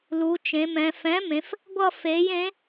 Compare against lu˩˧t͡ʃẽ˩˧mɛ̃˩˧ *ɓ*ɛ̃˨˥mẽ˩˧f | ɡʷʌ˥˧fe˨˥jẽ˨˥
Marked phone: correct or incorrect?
incorrect